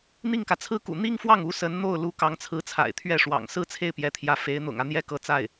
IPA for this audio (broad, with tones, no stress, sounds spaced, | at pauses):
n̪ i˥˩ ŋ k ä˩ t͡sʰ ɹ̩˥ k ṵ˨˩ n̪ i˥ ŋ f w ɑ˥˩ ŋ u˧˥ s ə˧˥ n n̪ o˥˩ ʊ̯ l u˧˥ k ɑ˧˥ ŋ t͡sʰ ɹ̩˧˥ t͡sʰ a̰˨˩ ɪ̯ t̪ʰ ɥ ɛ˥˩ ʂ w ɑ̰˨˩ ŋ s ɹ̩˥ t͡sʰ e˥˩ ɪ̯ p j ɛ˧˥ t̪ʰ j ä˧˥ f e˧˥ ɪ̯ n̪ ʊ̰˨˩ ŋ ä˦ n̪ j ɛ˥ k ɤ˥˧ t͡s a˥˩ ɪ̯